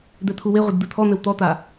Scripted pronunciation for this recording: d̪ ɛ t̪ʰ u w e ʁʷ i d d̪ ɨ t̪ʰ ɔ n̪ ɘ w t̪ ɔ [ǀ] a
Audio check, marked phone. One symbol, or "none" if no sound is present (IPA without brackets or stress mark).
t̪